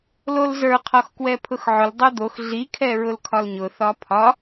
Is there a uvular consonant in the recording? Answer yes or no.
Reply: yes